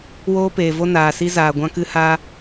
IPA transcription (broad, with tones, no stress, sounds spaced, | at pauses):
w oː˦ p eː˨ v o˦ n aː˨ s i˧ z aː˨ ɡʷ ã˦ k ɨ˦ h aː˧